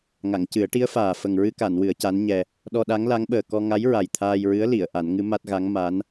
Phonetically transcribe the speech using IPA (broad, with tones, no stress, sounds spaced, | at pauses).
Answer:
ŋ a˨˩˨ ŋ c ɨ˨˩˦ ə̯ ʈ i˧˥ ə̯ f aː˨˩ f ə˨˩ ŋ ɹ ɨ˧ k a˨˩˨ n w ɨ˨˩˦ ə̯ c a˧˥ n ɲ ɛ˧ | ɗ ɔ˧ ɗ a˧˥ ŋ l a˧˥ ŋ ɓ əː˨˩ k ɔ˧ ŋ a˧˥ j ɹ a˨˩ j t̪ʰ aː˧ j ɹ ɨ˧˥ ə̯ l i˨˩˨ ə̯ ʔ a˨˩˦ n ŋ ɨ˧˥ m a˦˥ t̚ ɣ a˧˥ ŋ m a˧˥ n